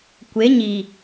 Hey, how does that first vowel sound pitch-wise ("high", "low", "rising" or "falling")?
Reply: rising